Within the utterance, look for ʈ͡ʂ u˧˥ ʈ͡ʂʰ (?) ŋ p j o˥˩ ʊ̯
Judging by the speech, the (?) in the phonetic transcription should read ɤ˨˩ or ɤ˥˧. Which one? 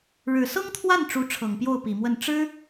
ɤ˨˩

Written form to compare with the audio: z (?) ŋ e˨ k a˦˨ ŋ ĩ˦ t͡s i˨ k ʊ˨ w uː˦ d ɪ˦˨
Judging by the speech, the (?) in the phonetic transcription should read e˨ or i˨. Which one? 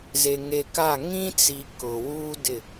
e˨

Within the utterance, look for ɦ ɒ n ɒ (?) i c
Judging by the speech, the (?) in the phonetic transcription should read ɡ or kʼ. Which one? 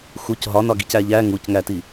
ɡ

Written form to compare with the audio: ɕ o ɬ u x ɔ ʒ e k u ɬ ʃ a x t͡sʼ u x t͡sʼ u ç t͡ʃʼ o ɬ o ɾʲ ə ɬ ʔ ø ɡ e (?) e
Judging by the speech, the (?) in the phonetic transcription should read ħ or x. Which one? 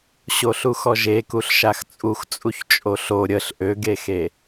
x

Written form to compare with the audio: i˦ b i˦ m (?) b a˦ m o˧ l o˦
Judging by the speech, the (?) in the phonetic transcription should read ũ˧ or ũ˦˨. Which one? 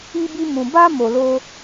ũ˧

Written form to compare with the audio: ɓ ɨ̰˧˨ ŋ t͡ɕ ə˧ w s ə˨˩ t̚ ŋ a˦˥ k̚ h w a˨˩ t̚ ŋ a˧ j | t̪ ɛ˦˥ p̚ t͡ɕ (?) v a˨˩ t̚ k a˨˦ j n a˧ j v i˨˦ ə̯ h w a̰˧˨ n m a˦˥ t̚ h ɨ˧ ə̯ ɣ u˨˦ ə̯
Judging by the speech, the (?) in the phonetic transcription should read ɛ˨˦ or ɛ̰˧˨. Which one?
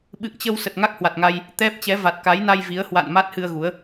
ɛ˨˦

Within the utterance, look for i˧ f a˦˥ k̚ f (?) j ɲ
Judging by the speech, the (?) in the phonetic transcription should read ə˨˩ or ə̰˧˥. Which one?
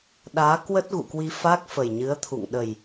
ə˨˩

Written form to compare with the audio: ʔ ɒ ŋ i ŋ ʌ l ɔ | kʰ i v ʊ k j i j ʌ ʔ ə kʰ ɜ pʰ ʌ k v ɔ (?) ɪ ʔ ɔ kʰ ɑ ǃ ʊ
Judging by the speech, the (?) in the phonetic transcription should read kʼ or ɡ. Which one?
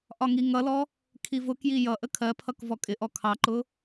kʼ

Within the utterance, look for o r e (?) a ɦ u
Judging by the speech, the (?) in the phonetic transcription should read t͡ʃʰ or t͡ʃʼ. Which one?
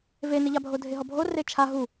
t͡ʃʰ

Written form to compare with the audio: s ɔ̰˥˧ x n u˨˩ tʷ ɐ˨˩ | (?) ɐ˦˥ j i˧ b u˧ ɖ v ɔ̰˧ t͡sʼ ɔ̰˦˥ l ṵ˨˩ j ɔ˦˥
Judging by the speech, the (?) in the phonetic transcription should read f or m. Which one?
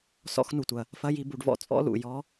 f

